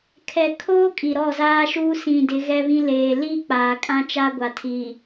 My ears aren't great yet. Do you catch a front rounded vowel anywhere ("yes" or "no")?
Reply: no